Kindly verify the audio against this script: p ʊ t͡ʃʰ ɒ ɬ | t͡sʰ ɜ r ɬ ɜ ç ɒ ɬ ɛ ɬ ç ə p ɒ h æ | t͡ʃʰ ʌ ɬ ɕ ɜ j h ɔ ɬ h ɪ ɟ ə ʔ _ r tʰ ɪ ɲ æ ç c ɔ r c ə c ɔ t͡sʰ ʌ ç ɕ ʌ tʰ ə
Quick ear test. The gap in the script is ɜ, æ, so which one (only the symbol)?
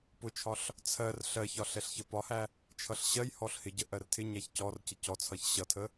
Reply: ɜ